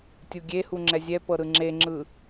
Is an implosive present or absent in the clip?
absent